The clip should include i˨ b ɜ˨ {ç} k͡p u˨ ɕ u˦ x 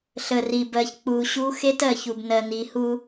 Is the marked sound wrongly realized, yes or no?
no